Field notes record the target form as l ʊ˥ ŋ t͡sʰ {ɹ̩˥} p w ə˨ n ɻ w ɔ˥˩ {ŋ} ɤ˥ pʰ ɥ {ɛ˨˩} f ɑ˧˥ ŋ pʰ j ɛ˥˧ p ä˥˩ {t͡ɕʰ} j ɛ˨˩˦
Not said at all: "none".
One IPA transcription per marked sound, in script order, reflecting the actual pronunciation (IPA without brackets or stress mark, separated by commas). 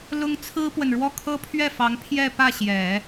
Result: ɹ̩˥, kʰ, ɛ˥˩, ɕ